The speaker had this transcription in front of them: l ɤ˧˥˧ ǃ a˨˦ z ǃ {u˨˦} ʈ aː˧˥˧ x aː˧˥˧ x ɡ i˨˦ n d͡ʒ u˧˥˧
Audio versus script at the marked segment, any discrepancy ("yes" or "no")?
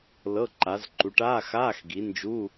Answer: no